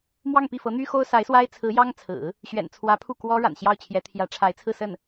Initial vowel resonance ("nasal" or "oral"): oral